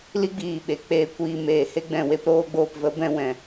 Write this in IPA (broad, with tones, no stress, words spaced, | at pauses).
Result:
li˦ɡ͡biː˨ ɓe˨ k͡peː˨kʷiː˨ meː˨he˦ɡ͡bɛ̃˨ we˧pɾoː˧ɡ͡boː˨p və˨˦bɛ̃˧wɛ̃˨